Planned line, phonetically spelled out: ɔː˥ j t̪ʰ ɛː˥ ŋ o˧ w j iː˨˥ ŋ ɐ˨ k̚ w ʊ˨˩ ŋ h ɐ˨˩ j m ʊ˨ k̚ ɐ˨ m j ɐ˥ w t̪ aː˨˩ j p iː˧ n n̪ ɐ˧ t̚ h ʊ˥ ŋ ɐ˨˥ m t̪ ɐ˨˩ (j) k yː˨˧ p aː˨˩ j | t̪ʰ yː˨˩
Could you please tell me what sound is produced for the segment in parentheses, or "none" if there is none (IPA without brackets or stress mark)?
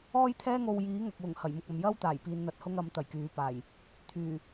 j